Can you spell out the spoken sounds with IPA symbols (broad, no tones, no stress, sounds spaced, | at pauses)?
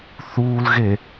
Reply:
θ uː l ɣ e